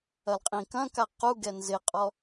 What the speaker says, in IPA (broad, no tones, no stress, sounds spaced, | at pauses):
ɐ l qʼ ĩ k ɐ̃ k a q u ɡ ɛ n z ɪ qʼ ɔ